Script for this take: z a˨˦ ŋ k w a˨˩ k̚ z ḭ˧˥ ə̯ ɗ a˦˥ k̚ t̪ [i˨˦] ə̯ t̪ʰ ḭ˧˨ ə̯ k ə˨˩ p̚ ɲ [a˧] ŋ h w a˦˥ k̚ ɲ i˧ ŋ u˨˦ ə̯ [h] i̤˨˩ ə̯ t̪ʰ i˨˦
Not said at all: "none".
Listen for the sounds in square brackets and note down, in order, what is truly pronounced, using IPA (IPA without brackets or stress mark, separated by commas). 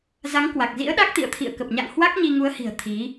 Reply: ḭ˧˨, a̰˧˨, h